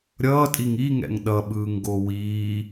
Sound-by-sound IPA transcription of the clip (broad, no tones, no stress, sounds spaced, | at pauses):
ɾʲ ʌː tʼ i ŋ i ŋ ɛ̰ ŋ ɗ ʌ ɓ ɯː ŋ ɡ o w iː